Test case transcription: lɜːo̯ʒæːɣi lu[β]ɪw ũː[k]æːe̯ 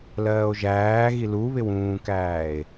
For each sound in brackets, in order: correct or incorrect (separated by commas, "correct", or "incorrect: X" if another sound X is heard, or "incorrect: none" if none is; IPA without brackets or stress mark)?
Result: correct, correct